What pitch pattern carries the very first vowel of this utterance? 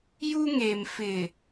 high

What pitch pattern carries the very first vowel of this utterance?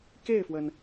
falling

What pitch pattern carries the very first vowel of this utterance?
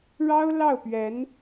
high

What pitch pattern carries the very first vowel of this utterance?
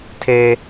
high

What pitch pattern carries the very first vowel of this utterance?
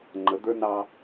rising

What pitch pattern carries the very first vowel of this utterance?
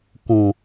low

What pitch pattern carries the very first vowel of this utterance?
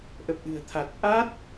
low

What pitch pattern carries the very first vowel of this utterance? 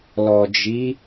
low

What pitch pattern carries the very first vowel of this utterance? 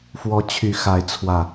rising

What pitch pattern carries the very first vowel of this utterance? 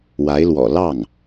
rising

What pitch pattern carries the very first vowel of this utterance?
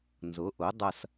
rising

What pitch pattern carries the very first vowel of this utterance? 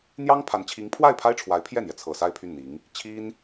high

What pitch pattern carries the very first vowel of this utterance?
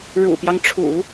low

